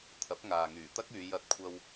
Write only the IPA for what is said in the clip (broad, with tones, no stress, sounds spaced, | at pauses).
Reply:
t̪ʰ ɐ˨˥ p̚ ŋ aː˨ ŋ yː˨˩ t̪ ɐ˥ k̚ yː˨˧ j ɐ˧ t̚ kʷʰ ɐ˧ w